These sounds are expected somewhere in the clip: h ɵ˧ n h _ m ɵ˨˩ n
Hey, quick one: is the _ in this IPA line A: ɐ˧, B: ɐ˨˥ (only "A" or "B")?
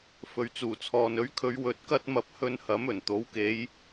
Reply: B